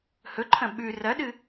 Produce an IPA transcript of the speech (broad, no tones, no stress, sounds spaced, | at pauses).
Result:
h ɵ ǃʰ ɐ̃ ɓ ʉ r ɐ ɗ ɨ